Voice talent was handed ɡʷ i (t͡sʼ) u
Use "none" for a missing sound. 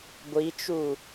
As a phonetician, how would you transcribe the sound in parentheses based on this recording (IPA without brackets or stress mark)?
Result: t͡ʃ